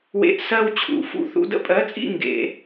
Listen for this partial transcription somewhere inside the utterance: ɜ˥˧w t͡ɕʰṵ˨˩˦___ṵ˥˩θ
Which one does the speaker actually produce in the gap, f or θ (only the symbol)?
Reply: f